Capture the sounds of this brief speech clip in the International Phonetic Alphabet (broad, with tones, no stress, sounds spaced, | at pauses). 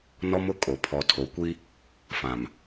n ɔ˦ m ʊ˦ kʼ o˨ pʰ ɔ˨ tʰ o˨ kʷ i˦ | f ã˨ m